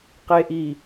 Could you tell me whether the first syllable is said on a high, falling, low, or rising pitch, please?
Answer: low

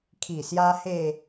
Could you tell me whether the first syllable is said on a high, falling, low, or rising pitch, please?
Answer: low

